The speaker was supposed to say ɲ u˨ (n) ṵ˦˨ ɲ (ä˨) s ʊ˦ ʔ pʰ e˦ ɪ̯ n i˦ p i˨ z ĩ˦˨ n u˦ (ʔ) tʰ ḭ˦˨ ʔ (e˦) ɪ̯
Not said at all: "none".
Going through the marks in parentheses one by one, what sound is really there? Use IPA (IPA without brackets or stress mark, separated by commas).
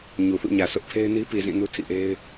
θ, ä˨, none, e˦